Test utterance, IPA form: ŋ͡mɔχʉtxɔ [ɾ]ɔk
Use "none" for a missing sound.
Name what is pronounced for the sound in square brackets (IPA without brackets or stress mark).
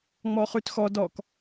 d